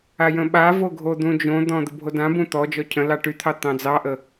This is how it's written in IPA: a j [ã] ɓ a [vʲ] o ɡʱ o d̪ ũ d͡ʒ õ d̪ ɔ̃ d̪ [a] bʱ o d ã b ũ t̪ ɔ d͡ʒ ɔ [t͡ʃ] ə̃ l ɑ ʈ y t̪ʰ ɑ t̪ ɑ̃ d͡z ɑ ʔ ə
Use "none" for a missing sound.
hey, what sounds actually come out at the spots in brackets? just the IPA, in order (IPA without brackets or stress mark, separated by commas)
ə̃, v, ə, cʰ